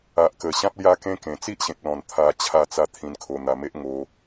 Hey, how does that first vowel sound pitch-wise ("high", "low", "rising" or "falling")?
low